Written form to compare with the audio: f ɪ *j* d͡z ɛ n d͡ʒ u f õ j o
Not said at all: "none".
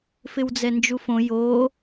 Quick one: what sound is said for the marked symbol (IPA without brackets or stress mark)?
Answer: w